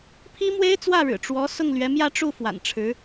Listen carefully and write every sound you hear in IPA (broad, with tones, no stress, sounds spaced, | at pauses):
pʰ i˥ m w e˥ ɪ̯ t͡s w ä˥˩ ɻ ɻ̩˨˩ ʈ͡ʂ w ɔ˧˥ s ʊ˥˩ ŋ l ɥ ɛ˧˥ m j ä˥˧ ʈ͡ʂ u˥˩ f w a̰˨˩ n ʈ͡ʂʰ ɻ̩˧˥